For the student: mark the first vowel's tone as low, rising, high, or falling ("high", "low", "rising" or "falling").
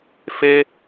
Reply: high